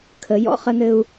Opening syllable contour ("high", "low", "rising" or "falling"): rising